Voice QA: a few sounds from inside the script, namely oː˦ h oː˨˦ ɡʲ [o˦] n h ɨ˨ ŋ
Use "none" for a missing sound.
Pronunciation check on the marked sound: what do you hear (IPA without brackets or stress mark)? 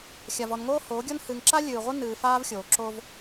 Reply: o˦